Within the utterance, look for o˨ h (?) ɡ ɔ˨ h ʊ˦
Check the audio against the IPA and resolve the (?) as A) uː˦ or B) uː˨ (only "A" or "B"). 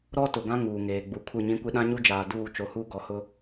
A